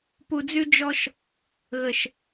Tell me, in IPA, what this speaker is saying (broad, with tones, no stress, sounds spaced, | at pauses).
p u˨ d͡z ʉ˧ d͡ʒ ɔ˧ ʃ | ɣ ə˨ ʃ